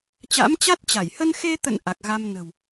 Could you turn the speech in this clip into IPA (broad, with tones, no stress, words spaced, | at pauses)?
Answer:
t͡ɕa̰˧˥mt͡ɕa˦˥t̚t͡ɕa˧˩j hə˧nxe˧t̪ə̰˧˨n ʔa˨˩k̚ɣa˧m nə̤˨˩w